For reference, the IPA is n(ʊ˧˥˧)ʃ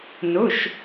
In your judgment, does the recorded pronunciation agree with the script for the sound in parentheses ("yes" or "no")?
no